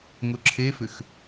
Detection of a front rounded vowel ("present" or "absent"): present